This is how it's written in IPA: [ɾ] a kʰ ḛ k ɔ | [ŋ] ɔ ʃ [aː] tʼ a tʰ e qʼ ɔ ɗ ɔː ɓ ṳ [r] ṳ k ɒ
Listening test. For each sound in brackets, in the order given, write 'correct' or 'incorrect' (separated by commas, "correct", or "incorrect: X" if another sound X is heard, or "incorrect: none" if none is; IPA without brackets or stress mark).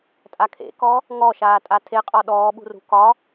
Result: incorrect: tʼ, correct, correct, correct